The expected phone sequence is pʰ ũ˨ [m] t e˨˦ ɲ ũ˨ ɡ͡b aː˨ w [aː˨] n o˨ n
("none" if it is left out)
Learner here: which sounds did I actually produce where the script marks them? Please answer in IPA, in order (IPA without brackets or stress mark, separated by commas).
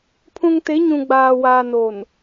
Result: ŋ, aː˨